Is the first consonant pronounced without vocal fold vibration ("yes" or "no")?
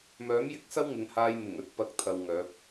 no